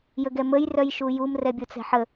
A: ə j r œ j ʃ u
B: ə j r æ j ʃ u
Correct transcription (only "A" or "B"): A